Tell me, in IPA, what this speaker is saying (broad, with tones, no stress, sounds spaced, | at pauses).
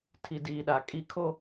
tʰ i˨ d iː˨ ɗ a˨ kʼ i˦ kʰ o˦